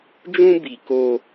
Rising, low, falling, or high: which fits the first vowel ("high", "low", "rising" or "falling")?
high